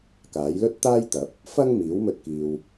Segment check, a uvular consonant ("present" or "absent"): absent